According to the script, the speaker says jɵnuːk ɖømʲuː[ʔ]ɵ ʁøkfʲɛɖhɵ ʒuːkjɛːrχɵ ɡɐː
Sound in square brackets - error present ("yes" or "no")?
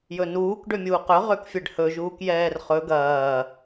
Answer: yes